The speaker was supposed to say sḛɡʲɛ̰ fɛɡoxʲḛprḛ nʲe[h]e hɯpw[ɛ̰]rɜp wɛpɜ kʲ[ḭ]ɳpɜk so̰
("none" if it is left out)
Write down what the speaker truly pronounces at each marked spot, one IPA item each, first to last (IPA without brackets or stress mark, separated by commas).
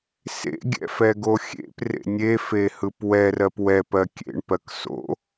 f, ɛ, ḛ